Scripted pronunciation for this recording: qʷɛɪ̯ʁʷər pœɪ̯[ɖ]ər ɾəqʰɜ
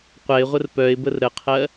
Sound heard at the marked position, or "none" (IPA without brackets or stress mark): b